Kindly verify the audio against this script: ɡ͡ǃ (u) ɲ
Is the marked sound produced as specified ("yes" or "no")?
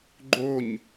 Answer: no